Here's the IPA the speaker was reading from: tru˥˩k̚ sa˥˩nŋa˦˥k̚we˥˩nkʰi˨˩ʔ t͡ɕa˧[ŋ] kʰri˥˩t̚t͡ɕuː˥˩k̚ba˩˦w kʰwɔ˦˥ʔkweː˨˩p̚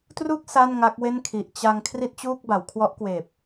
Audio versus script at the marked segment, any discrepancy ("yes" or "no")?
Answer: no